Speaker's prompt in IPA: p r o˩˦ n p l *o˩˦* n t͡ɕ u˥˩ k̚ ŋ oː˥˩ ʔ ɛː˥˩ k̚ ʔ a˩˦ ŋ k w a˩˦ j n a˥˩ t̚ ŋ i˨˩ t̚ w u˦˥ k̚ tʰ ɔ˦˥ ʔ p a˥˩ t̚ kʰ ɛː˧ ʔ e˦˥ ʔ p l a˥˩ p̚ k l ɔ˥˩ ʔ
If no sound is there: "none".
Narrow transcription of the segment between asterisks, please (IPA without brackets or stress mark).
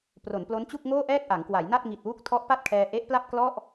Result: o˦˥